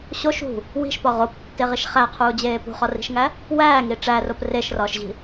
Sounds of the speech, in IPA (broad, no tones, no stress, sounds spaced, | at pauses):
ɕ o ʃ ṳ | w i̤ ʃ p ɒ ʁ o p tː e ʁ i ʃ χ æ qʰ uː d͡ʑ eː p ṳ χ ɒ r i̤ ʃ ŋ æ | w æː ŋ i ʈ͡ʂ æ r o p r e ʃ r ɒː ʃ ʑ i̤